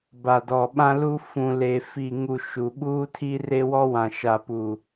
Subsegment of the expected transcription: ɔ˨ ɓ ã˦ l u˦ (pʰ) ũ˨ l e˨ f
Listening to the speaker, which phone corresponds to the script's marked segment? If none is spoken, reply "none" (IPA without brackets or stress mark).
f